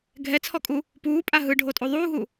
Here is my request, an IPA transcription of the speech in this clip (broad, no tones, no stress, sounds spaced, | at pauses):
ɡʱ ɛ t͡sʰ ɔ kʼ u | p uː pʼ a ɦ ɯ ɖʱ o tʼ u ðˤ uː ɦ u